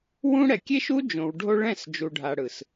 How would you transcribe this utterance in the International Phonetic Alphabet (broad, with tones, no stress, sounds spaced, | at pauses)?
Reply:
w ũ˦ ɽ ɛ˨ kʲ e˦ ʃ u˦ d͡ʒ õ˨ w ɖʱ o˦ ɭ ɛ̃˦˨ s d͡ʒ u˨ ɖʱ a˨ ɽ ɯ˨ s